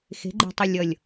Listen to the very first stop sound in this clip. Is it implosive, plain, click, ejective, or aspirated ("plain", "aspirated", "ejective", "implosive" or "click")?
click